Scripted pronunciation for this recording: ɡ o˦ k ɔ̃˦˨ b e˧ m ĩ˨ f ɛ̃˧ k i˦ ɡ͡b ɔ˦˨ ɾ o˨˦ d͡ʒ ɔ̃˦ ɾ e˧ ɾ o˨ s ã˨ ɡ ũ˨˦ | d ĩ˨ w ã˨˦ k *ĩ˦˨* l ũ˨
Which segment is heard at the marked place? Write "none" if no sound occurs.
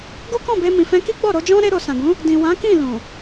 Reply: ĩ˦˨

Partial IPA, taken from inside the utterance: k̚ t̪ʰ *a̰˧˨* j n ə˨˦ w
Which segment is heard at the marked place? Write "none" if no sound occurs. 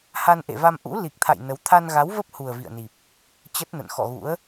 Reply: a̰˧˨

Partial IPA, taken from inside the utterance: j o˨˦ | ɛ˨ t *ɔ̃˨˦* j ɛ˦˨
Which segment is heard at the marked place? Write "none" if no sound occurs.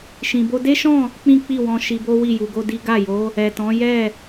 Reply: ɔ̃˨˦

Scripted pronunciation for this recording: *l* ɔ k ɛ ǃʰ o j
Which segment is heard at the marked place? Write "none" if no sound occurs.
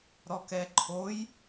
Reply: ɾ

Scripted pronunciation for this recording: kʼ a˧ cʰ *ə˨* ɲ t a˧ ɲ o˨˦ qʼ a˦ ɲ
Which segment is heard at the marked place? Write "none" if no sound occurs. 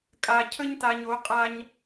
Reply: ə˦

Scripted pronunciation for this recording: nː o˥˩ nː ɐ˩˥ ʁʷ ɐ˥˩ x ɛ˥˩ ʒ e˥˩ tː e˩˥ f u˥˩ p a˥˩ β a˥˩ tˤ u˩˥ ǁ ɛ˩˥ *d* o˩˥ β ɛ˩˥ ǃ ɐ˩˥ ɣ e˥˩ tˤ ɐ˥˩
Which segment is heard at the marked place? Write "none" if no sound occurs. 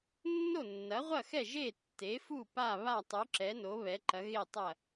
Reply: n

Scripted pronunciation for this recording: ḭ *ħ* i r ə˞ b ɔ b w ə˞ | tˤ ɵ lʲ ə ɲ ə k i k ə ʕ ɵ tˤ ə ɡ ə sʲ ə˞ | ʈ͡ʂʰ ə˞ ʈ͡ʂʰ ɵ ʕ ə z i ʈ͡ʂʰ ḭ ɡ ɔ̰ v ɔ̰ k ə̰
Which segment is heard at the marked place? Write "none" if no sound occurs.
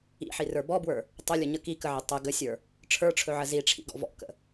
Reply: ħ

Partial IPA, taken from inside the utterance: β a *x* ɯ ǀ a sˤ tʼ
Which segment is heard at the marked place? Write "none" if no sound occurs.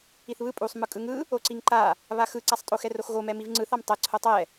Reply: x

